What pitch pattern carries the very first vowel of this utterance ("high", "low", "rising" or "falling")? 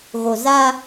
low